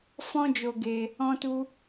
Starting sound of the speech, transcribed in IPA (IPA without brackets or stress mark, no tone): f